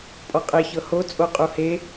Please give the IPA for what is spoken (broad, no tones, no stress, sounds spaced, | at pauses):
pʼ ɔ qʼ e ç ɤ h o t͡sʼ o qʼ u h e